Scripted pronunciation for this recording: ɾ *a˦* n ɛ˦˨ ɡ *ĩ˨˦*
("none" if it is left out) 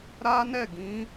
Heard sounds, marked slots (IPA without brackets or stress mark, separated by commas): a˦, ĩ˨˦